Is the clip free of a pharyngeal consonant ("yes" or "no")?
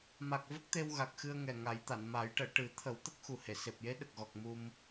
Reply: yes